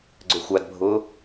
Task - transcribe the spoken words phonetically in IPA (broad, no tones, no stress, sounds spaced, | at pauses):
ɡ͡ǀ ø xʷ a d bʱ ʊː